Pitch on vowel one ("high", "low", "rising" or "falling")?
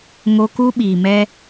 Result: high